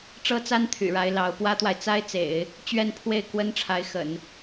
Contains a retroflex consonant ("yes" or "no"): yes